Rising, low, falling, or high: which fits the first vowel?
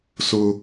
high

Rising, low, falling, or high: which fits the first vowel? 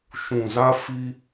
low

